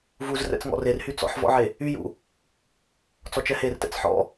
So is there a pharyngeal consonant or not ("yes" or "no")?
yes